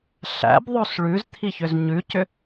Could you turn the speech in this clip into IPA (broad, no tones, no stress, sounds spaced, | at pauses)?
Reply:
ɬ æ̰ b ðˤ o s ɭ ʉ z t̪ʰ i ç ʏ z ɲ ʉ c ʏ